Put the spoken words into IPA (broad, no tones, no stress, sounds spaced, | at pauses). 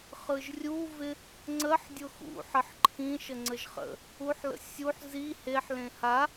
χ ɯ ʒ rʲ u v ɪ | ŋ͡ǀ ə ħ dʲ ʊ x ṵ ħ ə ħ ǃʰ ĩ ʃ ə ŋ͡ǀ ə ʒ χ ə̰ | u ħ l ə̰ sʲ u ħ z i h e ħ l ẽ h a